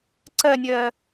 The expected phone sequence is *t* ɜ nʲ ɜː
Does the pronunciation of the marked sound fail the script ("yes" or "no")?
yes